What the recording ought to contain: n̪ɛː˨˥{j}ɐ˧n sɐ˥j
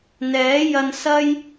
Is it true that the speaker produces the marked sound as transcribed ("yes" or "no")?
yes